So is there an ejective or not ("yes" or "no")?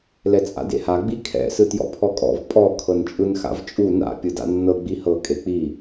yes